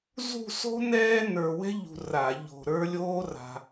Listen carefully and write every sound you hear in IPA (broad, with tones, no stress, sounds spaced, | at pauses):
z ṳ˥˧ s o̤˥ n ɛː˥ n ə˞˧ w ɛ̤˥ ʎ ṳ˧ r a˧˩˧ ʎ o̤˧ ɾ ə˞˥ lʲ oː˥ r a̤˧